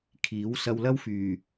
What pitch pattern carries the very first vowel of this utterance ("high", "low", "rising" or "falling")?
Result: rising